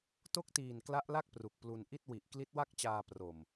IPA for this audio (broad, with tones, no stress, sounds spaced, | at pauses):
t o˥˩ k̚ t iː˨˩ n k l a˦˥ ʔ l a˥˩ k̚ p r u˨˩ k̚ p l u˧ n ʔ i˥˩ t̚ w i˨˩ ʔ k l i˦˥ t̚ w a˥˩ k̚ t͡ɕ aː˧ p r o˨˩ m